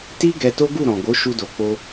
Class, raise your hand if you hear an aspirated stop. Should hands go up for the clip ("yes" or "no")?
no